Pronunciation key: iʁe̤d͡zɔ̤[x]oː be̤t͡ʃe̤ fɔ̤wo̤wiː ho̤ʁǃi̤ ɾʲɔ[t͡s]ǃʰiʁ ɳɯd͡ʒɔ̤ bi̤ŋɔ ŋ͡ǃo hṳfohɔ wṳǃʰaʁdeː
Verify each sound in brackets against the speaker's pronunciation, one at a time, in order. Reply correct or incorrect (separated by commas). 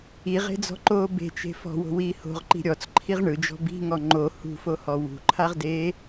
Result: incorrect, correct